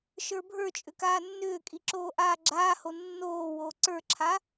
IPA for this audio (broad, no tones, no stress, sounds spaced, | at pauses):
ʃ ə˞ bʱ ə˞ t͡ʃʼ ʏ k aː nː ʏː kʼ i ǁ oː ʔ aː ɡ͡ǁ aː h o nː oː w oː ǀ ə˞ ǁʰ a